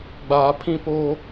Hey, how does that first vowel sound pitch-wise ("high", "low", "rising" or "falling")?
low